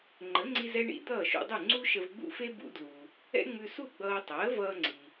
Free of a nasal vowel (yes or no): yes